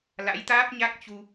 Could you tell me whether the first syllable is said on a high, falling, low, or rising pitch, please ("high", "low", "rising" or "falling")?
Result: rising